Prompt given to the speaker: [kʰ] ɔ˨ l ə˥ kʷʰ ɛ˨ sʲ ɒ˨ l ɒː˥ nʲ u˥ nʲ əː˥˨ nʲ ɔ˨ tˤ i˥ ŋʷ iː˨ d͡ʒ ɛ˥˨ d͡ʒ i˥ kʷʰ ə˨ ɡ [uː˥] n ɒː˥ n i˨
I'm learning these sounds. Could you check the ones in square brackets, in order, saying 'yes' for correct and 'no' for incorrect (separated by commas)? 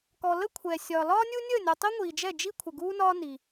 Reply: no, yes